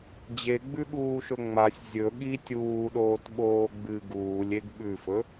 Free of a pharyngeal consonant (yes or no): yes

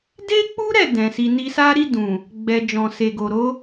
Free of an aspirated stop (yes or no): yes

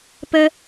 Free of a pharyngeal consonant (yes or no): yes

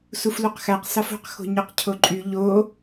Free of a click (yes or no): no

